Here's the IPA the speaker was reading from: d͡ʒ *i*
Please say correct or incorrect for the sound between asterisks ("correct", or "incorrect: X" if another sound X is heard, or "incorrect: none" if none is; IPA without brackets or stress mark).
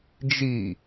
correct